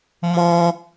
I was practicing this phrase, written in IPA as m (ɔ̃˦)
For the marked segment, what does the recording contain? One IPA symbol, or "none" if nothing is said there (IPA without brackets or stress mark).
ɔ̃˦